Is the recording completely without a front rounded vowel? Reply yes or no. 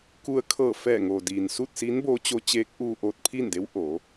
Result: yes